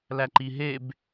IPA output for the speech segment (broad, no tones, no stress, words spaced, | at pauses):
læǃiɦeb